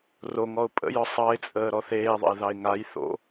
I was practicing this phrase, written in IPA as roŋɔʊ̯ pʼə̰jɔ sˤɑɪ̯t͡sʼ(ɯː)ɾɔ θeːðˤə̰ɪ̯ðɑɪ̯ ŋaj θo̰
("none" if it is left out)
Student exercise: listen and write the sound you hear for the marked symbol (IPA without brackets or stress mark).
əː